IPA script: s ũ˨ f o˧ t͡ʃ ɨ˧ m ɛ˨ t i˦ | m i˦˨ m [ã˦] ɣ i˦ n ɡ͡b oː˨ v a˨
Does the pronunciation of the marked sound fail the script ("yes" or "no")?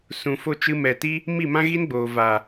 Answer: no